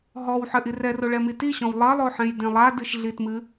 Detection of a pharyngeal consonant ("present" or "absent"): present